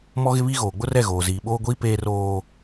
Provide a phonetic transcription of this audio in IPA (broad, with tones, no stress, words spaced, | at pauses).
mɔ˦ɣɪ˦βi˦ ɣoː˨ɡ͡bʊ˦rɛ˦˨ ɣoː˨ziː˨ ɓoː˦ɡʷiː˦ peː˦roː˦